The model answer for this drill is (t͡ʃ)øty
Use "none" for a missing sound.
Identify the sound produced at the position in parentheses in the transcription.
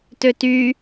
t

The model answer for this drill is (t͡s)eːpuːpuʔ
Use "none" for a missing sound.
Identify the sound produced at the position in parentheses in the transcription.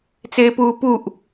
t͡s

